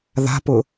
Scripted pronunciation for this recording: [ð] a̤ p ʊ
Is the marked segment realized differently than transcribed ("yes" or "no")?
no